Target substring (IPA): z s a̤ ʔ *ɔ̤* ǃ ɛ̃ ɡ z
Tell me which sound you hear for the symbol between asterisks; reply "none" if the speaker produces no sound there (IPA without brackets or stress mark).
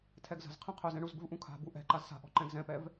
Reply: ɔ̤